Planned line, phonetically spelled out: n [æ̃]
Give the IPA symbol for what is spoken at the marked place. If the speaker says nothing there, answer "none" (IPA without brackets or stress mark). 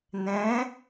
ɛ̃